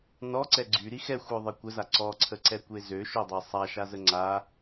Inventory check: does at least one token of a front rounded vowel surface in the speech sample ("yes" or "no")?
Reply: yes